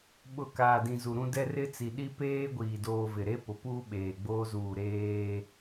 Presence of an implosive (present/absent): present